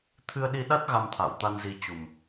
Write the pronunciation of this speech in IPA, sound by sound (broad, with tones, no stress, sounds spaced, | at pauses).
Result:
t̪ʰ ɨ˧ ə̯ ɗ i˧ ɗ a˦˥ t̚ ɣ a˧ m t̪ʰ a̰ː˧˨ w t̪ a˧ n z i˧ t͡ɕ u˨˩ m